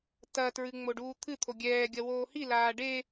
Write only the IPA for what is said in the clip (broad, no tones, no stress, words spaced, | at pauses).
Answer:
tɐ tɹɨŋ͡moɖuːt̪ʰɨ t̪ʰoɡʲɛː ɡʲɐwoːhi laːɖe